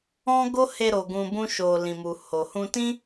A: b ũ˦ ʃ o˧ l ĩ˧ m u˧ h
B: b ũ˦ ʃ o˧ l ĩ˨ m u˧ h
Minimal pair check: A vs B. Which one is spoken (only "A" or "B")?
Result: A